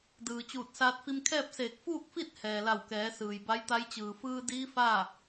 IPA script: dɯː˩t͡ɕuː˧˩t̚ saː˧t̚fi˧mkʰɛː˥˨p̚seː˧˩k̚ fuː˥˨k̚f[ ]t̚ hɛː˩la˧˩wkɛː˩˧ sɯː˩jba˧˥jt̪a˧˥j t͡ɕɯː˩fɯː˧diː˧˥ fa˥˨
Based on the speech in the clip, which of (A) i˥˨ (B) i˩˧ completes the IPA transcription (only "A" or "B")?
A